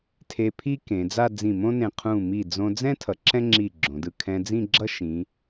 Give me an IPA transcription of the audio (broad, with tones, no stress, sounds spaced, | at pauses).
tʰ e˧ pʰ i˥ k ẽ˩˧ d͡z a˥˧ d͡z ĩ˧˩ m õ˥ n ẽ˧˩ qʰ ũ˧˩ m i˧˩ d͡z õ˧ d͡z ɛ̃˥ tʰ ʌ˩˧ ǁ ɛ̃˥ ŋ͡ǁ i˧˩ ɡ͡ǁ õ˩˧ d ɯ˧ kʰ ɛ̃˧ d͡z ĩ˥˧ ɡ͡ǁ ʌ˥ ʃ ĩ˩˧